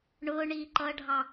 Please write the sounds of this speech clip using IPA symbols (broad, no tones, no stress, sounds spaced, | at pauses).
ɳ ʊː ɳ iː ǃ ʌː ɖʱ ɑ